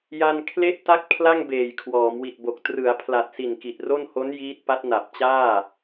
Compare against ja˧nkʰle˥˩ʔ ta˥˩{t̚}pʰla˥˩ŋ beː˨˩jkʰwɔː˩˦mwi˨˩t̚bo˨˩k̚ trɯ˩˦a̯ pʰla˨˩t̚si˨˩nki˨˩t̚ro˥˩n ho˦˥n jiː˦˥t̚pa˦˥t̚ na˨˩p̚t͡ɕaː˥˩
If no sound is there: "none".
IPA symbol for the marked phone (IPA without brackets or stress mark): k̚